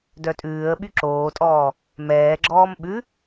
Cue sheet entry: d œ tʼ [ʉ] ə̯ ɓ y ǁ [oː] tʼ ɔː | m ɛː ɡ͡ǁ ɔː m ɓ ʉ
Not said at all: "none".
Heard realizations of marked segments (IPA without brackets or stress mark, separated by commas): ʉː, oː